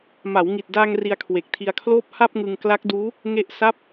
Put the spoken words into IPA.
ma˩˦wŋi˨˩t̚daː˧ŋ ri˧a̯kʰwe˨˩k̚tʰi˧a̯kʰloː˥˩p̚ ha˥˩p̚ŋɯ˧ŋkla˦˥k̚duː˦˥ | ŋe˦˥ʔ sa˦˥p̚

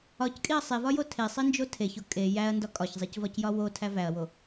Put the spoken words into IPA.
ɒckʼiɐ̯ sˤevɒjo tʰesˤind͡ʒo tʰeço kʼe jæɐ̯ndɒ kʼɒçzˤicvɒcjɒ wotʰæ væɐ̯wo

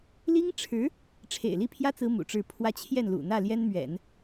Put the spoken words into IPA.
li˥ŋʈ͡ʂʰɻ̩˧˥ | ʈ͡ʂʰḛ˨˩ɪ̯li˥˩pʰjä˥t͡sɹ̩˧˥ mṵ˨˩ʈ͡ʂɻ̩˥˩pʰwä˥ t͡ɕʰjɛ˥˩nlṵ˨˩n̪ä˥˩ ljɛ˥nmɥɛ̰˨˩˦n

